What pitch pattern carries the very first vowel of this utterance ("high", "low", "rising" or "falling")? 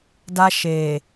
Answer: high